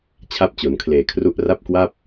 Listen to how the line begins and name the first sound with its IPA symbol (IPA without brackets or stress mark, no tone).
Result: t͡ɕʰ